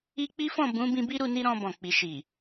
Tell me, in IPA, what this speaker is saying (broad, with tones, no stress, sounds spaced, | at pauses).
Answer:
i˦ k͡p i˦ f ɔ̃˦˨ b ũ˨˦ b ĩ˧ b i˦ ɾ u˧ n i˦ ɾ ɔ̃˧ b ɔ̃˨ k͡p i˨ ʃ i˨